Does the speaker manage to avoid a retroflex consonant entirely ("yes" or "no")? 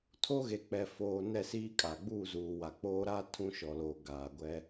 yes